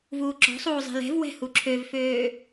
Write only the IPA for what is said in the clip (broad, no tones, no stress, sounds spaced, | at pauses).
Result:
v uː ǁ ɔ̤ sˤ uː zˤ ɛ̤ l ɛ̤ v w ɛ̤ h u ǁʰ ø v f øː